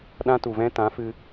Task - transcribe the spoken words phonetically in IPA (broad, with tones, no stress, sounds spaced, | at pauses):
ɗ ã˧ t u˨ v ɛ̃˧ t ã˨˦ f ɨ˧